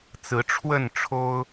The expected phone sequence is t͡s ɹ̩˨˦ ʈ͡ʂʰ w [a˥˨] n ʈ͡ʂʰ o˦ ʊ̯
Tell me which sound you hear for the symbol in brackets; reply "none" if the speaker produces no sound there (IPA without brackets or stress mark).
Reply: ə˥˨